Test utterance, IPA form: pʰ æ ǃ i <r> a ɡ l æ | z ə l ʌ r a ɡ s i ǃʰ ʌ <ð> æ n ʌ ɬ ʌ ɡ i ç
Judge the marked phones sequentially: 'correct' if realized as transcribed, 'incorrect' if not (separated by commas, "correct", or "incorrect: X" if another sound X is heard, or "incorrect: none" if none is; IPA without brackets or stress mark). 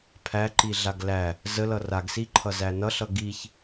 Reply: incorrect: ɮ, incorrect: z